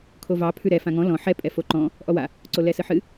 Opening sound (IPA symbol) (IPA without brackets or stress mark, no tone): kʰ